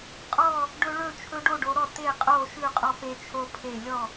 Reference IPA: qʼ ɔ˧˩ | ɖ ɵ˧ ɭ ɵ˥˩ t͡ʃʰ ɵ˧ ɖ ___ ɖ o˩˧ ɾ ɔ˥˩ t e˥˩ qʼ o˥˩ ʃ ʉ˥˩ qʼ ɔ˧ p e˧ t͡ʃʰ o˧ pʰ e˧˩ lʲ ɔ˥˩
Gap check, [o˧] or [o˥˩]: o˥˩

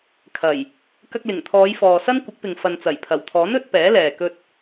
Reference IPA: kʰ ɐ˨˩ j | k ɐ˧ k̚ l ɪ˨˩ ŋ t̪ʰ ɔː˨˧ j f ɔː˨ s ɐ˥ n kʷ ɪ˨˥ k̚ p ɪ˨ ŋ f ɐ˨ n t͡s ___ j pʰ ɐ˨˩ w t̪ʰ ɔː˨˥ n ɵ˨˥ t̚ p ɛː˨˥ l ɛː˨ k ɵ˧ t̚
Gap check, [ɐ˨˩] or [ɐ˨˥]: ɐ˨˩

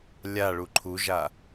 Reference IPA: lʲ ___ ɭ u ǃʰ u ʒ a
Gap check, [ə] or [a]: a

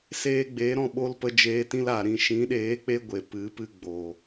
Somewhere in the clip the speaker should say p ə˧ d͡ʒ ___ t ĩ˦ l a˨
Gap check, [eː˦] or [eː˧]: eː˧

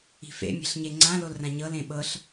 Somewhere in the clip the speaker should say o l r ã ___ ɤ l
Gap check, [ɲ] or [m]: ɲ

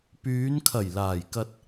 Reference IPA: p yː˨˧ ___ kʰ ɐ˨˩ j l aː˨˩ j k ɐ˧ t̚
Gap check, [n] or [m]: n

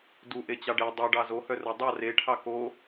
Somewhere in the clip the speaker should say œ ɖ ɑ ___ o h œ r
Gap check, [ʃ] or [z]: z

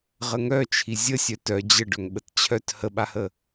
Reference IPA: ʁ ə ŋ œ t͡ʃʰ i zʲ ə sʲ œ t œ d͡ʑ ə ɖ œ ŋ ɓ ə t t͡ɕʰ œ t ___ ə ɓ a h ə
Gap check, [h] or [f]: h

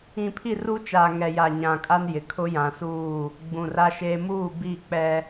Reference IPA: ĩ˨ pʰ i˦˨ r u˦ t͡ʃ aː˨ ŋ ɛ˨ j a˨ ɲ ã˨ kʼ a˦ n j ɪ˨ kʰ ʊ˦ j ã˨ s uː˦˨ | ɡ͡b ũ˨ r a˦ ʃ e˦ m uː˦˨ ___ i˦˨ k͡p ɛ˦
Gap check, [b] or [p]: b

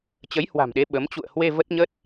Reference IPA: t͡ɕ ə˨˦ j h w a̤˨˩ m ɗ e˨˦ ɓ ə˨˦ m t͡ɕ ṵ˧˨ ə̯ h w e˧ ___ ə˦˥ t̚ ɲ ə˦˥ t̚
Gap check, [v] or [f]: v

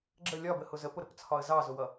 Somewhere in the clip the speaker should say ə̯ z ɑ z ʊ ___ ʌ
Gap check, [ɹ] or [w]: w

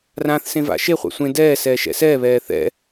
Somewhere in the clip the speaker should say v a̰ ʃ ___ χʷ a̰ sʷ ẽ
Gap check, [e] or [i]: e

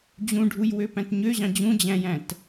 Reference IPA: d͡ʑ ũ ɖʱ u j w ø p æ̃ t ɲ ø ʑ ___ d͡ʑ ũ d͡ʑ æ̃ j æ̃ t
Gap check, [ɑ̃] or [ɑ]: ɑ̃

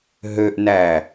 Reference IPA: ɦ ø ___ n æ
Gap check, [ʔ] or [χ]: ʔ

